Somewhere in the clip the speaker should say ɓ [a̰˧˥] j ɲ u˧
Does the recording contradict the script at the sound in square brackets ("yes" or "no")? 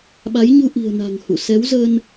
yes